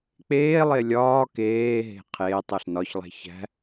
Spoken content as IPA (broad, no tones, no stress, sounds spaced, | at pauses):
k͡p eː lˠ e lʲ ɒː k eː ɦ e̤ qʰ eː tˤ o ɬ n ɒ ç lˠ æ̤ ç æ̤